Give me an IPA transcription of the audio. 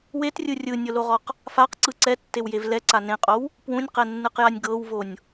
w e t rʲ ɯ rʲ ɯ nʲ ɤ l o ʁ ɔ q | f a q ǀ ɯ ǀ ɛ tː e w j e v l ɛ ǀ a n ẽ qʼ o w | p w ũ nʲ q ɛ nː ɯ q j a nʲ ɡ ɤ w v o nʲ

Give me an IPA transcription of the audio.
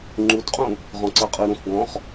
ŋ͡ǃ u d qʼ ũ | ʁ ɔ̃ ǀ ɜ qʼ ɯ ɾ ũ x ɡ ɔ̃ χ

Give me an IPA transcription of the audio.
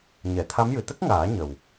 ɲ ɛ˨˩˨ t̪ʰ a˧˥ m j ɨ˨˩ t̪ ə˦˥ k̚ ŋ aː˨˩˦ ɲ ə˨˩ w

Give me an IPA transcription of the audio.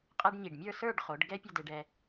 qʼ ɛ˥ ɖ ɲ i˧˩ ɖ mʲ ə˞˥˧ s ə˞˥˧ ɖ χ o˩˧ ɖ ɡ ɛ˥ pʲ ə˥˧ d e˧ ɖ ɛ˧

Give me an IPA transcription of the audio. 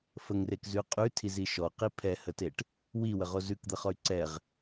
f ə ŋ r e k z ʉ qʼ ʉ tʰ i z i ʃ ɔ q i pʰ ɛ h ə t e ʈ | w i w ə ʁ o z ʉ k d̪ ə χ ɔ y̯ ǀ ɛ ʁ

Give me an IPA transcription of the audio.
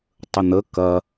tˤ ə n̪ ə k ɐ

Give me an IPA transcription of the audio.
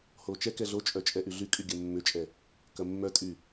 h o t͡ʃ ɛ k ɛ ɮ o t͡ʃʼ œ t͡ʃʼ ɛ ʔ y ɮ y kʼ y ɡʲ ɐ mː ʏ t͡ʃʼ ɛ | k ɐ mː œ tʼ y

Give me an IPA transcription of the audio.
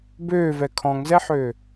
b øː v ɛ kʰ ɔ̃ ŋ z ɛ ħ øː

